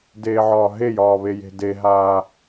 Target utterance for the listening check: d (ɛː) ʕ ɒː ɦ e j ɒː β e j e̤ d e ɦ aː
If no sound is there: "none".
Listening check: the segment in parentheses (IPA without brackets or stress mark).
eː